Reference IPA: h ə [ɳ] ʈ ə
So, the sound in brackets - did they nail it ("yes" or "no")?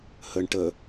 yes